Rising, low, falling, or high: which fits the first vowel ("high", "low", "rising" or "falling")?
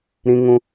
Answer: high